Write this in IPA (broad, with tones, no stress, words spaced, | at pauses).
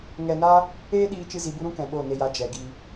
ŋɛ˧na˦ | eː˦ɗiː˧ t͡ʃɨ˦zi˧bu˦ ɾũ˦kɛ̃˨ ɓo˦˨ne˧ja˧ d͡ʒɛ˨ɡi˧